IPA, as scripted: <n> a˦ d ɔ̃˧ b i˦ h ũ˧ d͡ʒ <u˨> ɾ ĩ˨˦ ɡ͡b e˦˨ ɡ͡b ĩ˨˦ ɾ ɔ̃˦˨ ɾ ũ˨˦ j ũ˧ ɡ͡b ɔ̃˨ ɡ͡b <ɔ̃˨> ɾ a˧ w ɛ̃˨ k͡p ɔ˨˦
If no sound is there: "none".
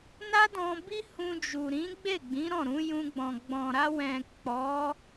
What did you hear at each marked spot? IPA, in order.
n, u˨, ɔ̃˨

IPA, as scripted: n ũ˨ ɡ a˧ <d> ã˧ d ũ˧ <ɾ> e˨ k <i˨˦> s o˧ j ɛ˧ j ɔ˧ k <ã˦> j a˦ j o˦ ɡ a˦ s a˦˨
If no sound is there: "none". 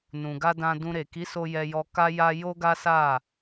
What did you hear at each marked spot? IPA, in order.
d, ɾ, i˨˦, a˦

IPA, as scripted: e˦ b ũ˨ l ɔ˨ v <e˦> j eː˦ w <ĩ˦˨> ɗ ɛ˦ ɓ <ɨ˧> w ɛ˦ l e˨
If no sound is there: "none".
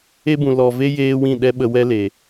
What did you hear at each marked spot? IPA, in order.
e˦, ĩ˦˨, ə˧

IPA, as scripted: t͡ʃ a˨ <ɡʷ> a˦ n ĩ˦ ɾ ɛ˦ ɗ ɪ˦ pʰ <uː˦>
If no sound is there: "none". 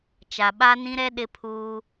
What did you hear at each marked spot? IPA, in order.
ɓ, uː˦

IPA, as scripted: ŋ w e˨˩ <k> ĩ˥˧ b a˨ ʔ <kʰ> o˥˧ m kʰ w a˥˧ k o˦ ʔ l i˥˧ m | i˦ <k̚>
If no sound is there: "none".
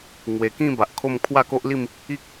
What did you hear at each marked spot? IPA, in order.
k, kʰ, k̚

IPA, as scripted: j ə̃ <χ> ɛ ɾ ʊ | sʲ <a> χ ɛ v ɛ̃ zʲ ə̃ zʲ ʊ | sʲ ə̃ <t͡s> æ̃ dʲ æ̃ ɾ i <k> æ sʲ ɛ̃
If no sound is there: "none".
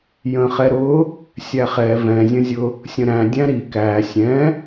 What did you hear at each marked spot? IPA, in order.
χ, æ, ɾ, k

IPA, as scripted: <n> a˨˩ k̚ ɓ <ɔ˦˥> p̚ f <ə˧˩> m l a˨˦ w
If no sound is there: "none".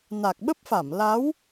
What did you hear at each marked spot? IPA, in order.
n, ə˦˥, a˧˩

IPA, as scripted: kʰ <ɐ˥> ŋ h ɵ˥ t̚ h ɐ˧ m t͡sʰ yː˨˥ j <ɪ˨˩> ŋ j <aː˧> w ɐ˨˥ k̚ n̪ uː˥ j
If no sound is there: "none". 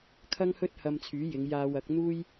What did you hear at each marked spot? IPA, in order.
ɐ˥, ɪ˨˧, aː˧

